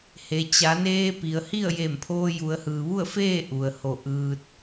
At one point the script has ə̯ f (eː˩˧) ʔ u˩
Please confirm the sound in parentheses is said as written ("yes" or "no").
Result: no